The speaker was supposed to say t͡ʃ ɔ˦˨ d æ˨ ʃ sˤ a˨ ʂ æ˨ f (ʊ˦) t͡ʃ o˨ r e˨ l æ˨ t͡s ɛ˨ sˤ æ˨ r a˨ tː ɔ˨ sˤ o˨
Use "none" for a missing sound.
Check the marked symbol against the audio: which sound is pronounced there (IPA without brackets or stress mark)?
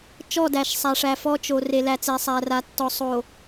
ɔ˦